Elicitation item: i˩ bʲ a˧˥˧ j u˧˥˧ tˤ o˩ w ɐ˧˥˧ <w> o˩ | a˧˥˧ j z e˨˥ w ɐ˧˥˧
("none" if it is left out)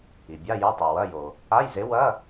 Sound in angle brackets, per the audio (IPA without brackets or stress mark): j